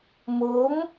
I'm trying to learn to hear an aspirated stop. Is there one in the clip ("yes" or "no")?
no